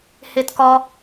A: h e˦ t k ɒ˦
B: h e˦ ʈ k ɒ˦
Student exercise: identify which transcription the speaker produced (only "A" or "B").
A